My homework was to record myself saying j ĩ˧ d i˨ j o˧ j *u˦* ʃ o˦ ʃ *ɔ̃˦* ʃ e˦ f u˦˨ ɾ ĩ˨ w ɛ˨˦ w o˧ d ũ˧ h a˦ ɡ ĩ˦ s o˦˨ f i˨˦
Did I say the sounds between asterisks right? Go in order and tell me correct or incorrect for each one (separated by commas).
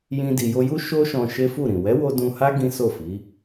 correct, incorrect